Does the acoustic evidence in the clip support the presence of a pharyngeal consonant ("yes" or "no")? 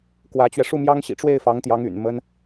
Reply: no